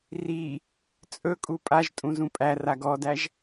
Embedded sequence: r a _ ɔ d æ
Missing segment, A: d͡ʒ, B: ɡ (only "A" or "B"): B